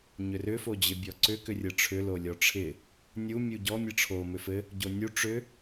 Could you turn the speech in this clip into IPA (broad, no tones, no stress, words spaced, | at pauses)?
ɲʏrʏ fod͡ʑɪbʲɔǀʏ kʏrʲɯʈ͡ʂʰʏ lolʲɔʈ͡ʂʰɪ | nʲu mʲuɟɔ mʲɯʈ͡ʂʰo mʏfɘ | ɟonʲu ʈ͡ʂʏ